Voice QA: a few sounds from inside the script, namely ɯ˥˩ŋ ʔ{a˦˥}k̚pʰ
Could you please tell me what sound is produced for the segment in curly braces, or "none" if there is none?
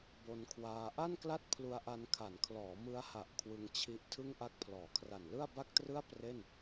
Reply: a˦˥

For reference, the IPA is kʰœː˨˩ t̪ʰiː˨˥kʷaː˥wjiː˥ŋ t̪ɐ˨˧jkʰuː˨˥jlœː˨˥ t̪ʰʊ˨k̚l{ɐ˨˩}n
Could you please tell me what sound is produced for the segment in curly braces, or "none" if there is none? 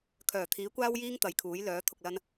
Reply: ɐ˧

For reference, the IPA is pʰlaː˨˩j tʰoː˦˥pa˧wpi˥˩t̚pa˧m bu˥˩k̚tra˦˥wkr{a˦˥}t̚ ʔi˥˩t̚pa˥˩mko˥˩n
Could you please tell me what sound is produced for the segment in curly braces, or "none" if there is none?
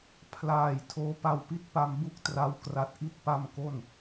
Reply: a˦˥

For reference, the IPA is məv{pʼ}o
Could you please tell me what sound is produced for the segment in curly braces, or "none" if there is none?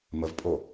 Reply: pʼ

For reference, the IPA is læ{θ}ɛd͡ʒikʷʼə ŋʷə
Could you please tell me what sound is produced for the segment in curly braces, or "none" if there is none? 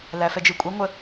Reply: f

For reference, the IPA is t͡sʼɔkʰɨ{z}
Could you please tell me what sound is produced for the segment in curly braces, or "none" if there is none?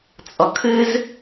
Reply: z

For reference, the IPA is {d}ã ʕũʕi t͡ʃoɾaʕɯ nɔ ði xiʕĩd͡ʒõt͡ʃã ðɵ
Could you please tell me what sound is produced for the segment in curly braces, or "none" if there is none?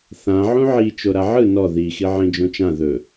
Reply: θ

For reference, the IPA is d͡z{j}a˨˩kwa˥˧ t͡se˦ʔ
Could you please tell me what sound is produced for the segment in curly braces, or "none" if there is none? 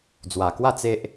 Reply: w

